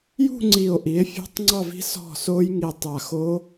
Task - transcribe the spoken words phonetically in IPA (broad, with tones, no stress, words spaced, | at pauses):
jṳ˥˧ŋ͡ǀi˧˩o̯ ʔi˩˥e̯fʲṳ˦˥tˤŋ͡ǀɑ˥˧vi̤˦˥ sɔ̤˥˩so˦˥j ŋi˧˩tˤa˧˩xo˦˥